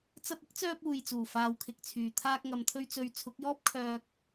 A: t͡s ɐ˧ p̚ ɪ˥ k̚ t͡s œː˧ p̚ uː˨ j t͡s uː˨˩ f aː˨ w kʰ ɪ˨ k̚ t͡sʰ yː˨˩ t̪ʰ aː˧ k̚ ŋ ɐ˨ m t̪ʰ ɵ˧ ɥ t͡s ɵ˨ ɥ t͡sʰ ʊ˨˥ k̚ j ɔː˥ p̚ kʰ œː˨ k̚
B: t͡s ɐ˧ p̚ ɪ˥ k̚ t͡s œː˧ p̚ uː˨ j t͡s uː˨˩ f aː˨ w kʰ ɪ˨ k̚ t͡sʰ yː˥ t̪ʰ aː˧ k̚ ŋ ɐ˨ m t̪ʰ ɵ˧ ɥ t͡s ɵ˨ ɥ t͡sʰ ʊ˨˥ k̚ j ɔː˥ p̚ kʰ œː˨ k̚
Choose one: A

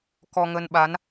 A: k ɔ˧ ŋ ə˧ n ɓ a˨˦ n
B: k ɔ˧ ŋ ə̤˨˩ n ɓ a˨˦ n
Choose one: A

